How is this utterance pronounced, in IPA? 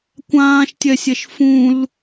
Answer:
kʷ ãː ʃ tʲ ɛ sʲ ɛ ʃ f ũ l

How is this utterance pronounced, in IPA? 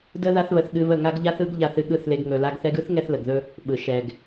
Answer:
d ə˦ ð a˦ θ β ə˧ θ ɠ ɨ˧ β ə˦˨ ŋ a˦ ɡ ʎ a˦ θ ɯ˦ ɡ ʎ a˧ θ ɨ˧ ɠ ɯ˦˨ θ l e˧ ɡ ŋ ɵ˨ l a˧ ɡ θ ɛ˧ ɡ ɯ˦ θ ŋ ɛ˧ θ l ə˨ ɡ ð ɵ˦ | ɓ ɯ˨ ʃ ɛ˨ ɡ

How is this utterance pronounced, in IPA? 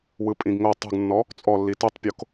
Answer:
w ɯ pʼ ĩ ɡ ŋ o tˤ ṳ ɡ nː ɔ | t͡sʼ ɔ lː i t ɯ tˤ pʲ o k

